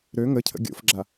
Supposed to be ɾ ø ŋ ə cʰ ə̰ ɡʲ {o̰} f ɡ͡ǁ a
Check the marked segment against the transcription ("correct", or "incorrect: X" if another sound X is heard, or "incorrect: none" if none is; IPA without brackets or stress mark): correct